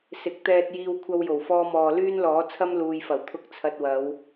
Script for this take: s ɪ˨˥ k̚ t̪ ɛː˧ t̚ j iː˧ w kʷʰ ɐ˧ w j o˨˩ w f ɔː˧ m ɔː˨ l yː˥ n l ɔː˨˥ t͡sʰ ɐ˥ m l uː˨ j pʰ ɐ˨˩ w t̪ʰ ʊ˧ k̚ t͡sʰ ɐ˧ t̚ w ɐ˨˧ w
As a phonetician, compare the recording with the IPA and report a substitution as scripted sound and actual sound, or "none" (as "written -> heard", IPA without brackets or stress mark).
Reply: pʰ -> f